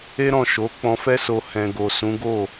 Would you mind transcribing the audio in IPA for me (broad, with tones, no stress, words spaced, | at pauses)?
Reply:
e˦ɾɔ̃˦˨ ʃo˨˦ k͡pɔ̃˧fɛ˦so˧ hɛ̃˧ ɡo˨sũ˨˦ɡo˦˨